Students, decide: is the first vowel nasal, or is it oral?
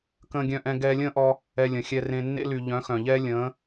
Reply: nasal